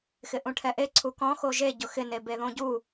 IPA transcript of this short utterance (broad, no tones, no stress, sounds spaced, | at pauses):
x ɪ ʔ ũ ʈʰ ɛ ʔ e ǀʰ u k ɔ̃ x o ʒ e ɟ ʊ x ɪ n e b e ð õ ɟ u